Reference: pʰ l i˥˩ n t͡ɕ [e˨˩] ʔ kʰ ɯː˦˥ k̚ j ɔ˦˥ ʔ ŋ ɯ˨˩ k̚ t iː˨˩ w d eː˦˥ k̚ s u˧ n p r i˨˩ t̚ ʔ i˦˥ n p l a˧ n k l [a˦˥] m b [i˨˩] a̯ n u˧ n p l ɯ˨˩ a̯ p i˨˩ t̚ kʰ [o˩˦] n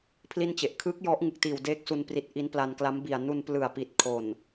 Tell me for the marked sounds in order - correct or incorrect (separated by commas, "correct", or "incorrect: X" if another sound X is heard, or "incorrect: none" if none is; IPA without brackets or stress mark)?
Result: correct, correct, correct, incorrect: o˨˩